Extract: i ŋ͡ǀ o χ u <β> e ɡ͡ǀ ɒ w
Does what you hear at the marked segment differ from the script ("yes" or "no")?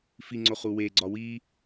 yes